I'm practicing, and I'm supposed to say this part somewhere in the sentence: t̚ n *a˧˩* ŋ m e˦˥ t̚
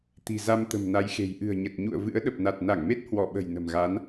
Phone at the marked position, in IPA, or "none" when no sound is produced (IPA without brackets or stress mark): a˧˩